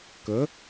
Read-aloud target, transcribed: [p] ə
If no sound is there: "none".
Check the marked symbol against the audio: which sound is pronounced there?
k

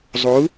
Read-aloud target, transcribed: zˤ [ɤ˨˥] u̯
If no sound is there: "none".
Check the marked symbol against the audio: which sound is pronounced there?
o˨˥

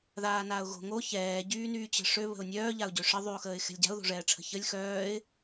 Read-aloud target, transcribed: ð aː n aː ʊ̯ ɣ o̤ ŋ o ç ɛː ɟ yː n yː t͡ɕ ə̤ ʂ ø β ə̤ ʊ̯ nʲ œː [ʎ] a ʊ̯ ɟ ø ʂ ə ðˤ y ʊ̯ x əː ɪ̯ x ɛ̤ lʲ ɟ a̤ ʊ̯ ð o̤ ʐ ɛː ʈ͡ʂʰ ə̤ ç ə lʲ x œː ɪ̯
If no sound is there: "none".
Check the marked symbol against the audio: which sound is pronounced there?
ʎ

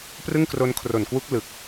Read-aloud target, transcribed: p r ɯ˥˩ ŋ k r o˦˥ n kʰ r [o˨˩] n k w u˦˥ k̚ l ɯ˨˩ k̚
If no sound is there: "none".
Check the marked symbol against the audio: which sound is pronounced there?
o˨˩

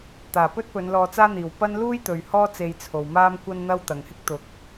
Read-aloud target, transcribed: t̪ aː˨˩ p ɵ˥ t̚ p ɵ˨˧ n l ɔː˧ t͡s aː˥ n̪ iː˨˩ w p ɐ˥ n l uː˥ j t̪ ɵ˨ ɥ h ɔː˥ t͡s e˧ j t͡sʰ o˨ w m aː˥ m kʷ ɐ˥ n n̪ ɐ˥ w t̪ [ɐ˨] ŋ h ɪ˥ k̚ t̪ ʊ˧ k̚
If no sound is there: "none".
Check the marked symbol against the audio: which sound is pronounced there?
ɐ˨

